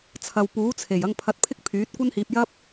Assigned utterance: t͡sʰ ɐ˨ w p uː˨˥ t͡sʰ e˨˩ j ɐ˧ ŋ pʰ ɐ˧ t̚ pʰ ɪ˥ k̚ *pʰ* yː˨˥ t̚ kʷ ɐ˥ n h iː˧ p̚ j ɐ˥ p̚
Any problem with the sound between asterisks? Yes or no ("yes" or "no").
no